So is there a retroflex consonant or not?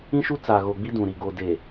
no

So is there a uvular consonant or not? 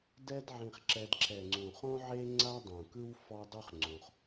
yes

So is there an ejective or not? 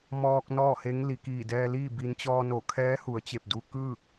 no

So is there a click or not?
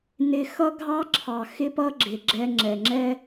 yes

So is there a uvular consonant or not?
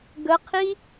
yes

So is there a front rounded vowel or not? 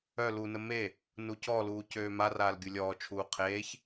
yes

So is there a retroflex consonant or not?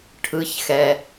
yes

